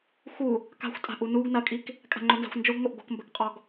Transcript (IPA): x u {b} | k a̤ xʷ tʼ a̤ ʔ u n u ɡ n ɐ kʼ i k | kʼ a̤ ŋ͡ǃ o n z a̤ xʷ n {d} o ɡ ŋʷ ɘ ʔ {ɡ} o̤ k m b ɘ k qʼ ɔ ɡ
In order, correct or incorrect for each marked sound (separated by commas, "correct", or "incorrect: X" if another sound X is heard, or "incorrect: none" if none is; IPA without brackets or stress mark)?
incorrect: none, incorrect: d͡ʒ, correct